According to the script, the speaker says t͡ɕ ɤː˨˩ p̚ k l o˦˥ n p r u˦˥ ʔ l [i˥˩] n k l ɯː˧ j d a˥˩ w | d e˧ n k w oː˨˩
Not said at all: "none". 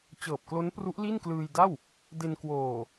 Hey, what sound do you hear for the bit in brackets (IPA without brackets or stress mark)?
i˥˩